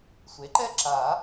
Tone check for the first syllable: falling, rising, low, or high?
rising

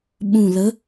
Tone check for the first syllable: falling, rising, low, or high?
low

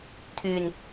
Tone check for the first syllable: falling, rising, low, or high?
low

